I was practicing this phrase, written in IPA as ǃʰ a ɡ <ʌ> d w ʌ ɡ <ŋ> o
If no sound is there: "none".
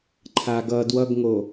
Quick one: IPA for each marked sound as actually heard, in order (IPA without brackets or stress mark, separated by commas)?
ʌ, ŋ